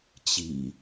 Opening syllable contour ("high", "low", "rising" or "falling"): low